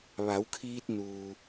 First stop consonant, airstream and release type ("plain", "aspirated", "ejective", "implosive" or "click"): aspirated